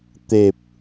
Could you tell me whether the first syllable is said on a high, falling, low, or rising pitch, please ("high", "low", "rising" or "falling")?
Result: low